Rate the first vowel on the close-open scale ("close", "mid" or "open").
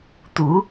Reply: close